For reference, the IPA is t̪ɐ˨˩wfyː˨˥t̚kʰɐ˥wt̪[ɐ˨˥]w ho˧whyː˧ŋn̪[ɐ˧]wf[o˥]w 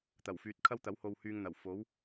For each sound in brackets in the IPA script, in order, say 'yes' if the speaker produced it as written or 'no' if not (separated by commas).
yes, no, no